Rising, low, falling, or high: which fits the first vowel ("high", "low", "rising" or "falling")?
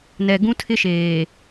low